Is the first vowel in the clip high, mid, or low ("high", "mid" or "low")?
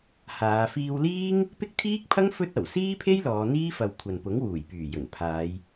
low